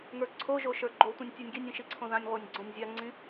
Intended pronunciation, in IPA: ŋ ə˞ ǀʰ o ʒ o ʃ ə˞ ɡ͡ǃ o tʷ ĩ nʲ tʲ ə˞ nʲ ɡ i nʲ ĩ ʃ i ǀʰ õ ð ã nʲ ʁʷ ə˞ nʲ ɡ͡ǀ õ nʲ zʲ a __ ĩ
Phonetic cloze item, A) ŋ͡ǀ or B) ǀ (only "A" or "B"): A